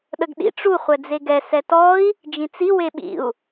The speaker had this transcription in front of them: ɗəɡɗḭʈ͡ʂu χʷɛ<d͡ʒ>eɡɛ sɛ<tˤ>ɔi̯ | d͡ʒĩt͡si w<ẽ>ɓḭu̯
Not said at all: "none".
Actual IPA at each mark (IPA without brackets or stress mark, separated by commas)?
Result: d͡z, t, e